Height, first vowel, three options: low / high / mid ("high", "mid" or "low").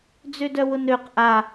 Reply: mid